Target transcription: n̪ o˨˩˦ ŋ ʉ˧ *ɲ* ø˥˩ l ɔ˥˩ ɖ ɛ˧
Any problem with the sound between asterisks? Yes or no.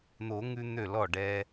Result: yes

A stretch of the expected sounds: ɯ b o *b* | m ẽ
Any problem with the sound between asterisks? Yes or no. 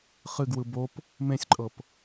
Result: yes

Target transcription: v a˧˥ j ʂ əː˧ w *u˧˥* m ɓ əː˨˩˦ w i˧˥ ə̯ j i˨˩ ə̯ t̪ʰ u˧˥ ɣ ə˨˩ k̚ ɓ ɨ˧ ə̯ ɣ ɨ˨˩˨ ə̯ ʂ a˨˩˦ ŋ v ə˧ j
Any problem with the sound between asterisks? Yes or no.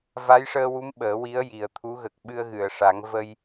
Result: no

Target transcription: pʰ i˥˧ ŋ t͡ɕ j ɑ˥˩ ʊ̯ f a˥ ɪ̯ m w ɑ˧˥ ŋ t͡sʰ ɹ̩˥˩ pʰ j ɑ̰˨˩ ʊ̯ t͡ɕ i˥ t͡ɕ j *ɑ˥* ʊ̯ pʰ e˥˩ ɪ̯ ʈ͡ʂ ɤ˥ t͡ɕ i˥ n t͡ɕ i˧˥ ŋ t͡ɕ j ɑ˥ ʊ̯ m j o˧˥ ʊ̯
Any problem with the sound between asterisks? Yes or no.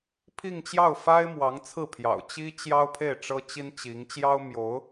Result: no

